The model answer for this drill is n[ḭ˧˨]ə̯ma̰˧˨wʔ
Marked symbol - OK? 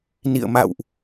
yes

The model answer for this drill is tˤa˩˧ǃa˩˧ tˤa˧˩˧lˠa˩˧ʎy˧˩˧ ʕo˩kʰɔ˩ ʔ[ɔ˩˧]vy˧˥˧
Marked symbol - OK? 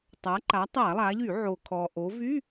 no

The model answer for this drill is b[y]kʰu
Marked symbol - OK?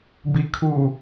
no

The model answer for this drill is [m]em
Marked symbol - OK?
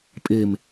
no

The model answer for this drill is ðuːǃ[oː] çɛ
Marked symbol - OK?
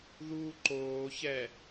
yes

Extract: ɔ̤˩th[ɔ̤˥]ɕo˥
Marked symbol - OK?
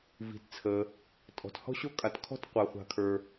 yes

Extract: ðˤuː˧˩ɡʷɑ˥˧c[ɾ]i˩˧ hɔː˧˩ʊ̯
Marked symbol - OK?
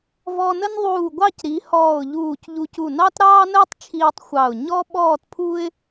yes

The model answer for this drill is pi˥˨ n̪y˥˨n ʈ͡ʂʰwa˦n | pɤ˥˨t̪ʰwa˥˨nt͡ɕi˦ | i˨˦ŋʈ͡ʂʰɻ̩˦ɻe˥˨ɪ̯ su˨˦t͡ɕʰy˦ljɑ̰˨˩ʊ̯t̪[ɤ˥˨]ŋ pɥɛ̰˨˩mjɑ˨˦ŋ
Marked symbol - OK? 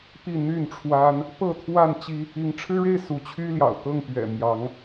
yes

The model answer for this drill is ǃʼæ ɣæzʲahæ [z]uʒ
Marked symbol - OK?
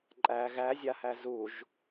yes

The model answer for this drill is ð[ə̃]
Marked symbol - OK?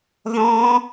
no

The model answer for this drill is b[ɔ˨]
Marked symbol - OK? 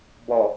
yes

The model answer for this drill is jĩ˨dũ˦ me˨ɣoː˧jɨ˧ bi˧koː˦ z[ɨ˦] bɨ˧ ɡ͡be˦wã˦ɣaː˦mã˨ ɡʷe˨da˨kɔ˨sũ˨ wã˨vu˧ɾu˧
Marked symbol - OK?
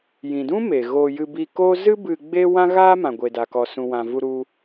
yes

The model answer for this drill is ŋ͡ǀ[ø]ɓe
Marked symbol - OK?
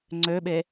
yes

